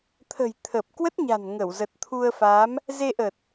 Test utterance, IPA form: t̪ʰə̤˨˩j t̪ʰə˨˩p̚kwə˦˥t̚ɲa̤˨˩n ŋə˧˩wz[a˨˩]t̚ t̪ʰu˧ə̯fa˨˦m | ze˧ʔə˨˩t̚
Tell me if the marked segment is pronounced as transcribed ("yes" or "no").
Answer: no